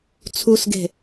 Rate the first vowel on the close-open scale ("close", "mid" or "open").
close